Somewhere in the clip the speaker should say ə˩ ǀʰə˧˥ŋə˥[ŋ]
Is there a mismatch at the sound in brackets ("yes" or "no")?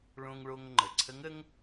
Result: no